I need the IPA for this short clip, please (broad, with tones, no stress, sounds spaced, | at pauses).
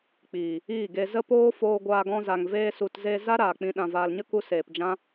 k͡p iː˨ | iː˦˨ ɡ e˧ z ə˦ p oː˦ f oː˧ ɡʷ aː˧ ɡ ɔ̃˧ z a˨ ŋ v eː˧ s u˨ t z e˧ z a˦ ɾ aː˨ k͡p ĩ˧ ɗ ã˨ v aː˨ l ɲ ə˦ k u˧ s eː˨ p d͡ʒ ã˦